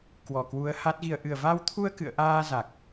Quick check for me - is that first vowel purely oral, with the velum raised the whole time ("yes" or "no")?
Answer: yes